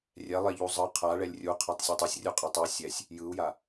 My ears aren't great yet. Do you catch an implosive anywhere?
no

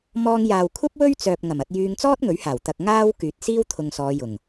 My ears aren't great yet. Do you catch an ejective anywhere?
no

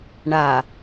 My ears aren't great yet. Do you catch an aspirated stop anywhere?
no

